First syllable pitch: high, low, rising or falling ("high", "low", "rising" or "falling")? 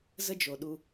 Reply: high